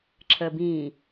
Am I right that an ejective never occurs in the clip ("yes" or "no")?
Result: yes